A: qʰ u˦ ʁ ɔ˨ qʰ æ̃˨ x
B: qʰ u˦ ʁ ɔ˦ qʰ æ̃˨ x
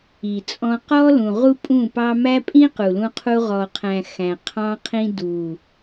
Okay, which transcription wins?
A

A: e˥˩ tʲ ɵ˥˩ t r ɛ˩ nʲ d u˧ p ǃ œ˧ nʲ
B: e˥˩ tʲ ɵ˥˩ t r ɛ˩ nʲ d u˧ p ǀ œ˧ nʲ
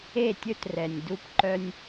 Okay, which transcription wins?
A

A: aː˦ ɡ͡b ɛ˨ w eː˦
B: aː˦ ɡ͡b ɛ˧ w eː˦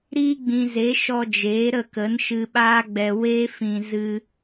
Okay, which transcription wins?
B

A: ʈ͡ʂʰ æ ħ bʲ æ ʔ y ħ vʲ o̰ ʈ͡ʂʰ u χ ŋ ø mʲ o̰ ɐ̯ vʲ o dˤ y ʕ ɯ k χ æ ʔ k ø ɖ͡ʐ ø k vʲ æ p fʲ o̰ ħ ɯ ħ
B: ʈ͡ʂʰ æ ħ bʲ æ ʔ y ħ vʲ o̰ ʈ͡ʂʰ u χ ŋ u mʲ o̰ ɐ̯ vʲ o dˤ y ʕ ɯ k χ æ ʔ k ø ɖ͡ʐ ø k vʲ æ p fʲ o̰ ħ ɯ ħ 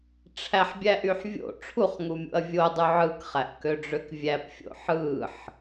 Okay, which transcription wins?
B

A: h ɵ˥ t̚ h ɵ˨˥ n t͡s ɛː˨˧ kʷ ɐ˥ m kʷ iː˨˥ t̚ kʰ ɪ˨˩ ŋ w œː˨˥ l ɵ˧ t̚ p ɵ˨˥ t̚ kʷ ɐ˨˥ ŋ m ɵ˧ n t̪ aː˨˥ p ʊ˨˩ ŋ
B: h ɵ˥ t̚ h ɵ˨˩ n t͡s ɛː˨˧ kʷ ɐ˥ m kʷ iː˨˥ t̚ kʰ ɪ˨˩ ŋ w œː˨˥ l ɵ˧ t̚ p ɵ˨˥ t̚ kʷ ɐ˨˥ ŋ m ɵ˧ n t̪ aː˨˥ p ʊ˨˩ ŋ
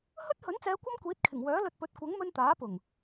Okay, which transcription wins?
A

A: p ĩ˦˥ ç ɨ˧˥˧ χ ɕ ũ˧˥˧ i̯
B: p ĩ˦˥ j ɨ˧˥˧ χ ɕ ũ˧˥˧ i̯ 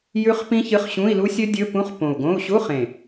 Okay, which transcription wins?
A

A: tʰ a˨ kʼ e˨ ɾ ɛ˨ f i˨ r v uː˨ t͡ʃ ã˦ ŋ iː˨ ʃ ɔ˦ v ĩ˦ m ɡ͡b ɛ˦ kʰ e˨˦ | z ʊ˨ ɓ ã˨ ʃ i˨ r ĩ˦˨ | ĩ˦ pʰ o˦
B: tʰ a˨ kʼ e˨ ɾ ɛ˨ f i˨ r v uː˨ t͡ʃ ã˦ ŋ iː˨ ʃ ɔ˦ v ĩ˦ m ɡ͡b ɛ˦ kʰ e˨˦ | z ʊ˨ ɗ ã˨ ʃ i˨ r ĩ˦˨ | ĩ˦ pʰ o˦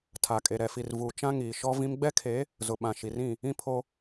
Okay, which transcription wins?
A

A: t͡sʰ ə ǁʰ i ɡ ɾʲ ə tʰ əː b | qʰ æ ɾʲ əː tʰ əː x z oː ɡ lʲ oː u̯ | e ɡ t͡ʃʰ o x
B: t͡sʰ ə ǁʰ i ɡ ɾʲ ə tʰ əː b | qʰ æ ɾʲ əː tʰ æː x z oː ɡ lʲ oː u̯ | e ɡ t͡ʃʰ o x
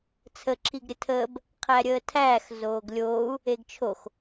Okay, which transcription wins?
B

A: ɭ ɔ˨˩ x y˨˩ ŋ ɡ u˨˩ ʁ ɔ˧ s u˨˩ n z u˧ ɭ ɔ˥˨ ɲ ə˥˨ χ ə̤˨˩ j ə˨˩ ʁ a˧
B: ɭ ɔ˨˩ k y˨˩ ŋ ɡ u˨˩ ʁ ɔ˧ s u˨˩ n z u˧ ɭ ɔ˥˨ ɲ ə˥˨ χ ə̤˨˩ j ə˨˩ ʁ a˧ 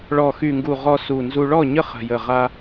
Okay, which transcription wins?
A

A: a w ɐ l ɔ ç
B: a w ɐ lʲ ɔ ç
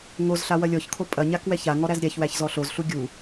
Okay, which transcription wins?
B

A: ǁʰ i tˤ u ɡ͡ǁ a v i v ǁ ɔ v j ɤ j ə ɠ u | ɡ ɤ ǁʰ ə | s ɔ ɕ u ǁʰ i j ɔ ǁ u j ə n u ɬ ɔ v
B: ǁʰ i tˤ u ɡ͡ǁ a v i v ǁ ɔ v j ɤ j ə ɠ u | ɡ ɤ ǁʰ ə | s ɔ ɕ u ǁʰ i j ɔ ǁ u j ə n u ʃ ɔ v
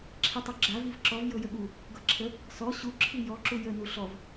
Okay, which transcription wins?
A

